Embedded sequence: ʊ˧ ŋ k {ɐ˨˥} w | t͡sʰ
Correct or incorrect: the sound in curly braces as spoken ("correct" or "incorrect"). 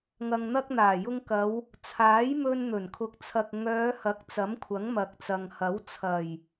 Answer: incorrect